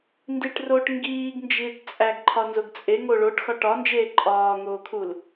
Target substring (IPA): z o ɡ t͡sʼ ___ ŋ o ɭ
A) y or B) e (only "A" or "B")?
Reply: B